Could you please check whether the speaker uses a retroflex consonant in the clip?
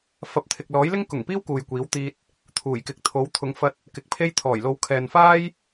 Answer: no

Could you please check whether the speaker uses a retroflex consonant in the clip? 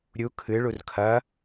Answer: yes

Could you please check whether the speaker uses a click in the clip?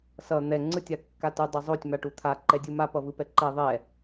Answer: yes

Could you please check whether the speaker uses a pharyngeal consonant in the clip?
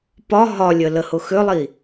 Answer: no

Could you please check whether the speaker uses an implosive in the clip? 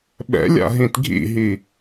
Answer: yes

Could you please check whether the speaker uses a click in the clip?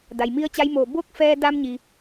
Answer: no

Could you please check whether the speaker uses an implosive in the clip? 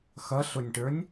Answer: no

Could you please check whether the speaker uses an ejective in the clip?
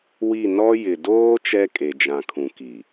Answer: yes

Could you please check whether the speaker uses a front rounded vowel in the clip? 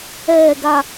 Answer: no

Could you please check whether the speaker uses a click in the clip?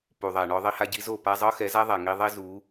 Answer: no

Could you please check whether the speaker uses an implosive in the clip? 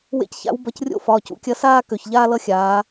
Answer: no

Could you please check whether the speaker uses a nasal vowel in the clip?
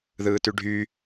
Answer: no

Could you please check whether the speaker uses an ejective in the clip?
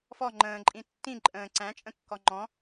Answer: yes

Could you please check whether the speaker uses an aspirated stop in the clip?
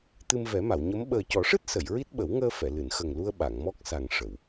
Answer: no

